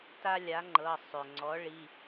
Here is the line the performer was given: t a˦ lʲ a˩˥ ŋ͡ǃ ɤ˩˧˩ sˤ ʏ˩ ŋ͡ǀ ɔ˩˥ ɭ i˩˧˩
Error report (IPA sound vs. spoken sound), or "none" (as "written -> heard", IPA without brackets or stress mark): none